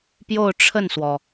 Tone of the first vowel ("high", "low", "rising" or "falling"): falling